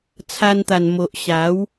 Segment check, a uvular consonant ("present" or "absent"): absent